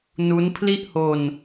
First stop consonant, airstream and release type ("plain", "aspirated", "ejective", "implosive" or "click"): aspirated